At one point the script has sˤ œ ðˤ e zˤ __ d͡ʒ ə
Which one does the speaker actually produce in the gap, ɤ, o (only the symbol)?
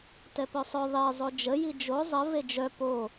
o